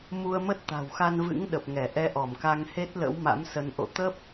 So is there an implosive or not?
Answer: yes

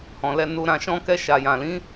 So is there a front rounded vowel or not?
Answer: no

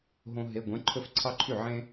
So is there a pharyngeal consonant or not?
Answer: yes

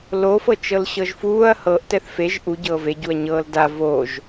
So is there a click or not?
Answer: no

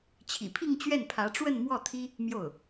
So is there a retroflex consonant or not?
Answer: yes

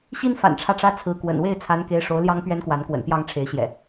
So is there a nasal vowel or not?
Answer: no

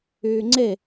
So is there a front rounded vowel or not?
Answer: yes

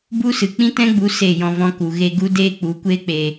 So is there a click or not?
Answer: no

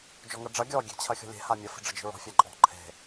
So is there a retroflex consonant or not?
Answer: yes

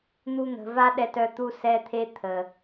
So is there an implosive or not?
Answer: yes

